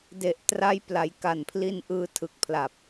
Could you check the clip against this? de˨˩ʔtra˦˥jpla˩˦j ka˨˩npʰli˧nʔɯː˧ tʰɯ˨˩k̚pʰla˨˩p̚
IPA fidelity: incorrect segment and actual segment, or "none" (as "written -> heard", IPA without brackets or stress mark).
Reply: none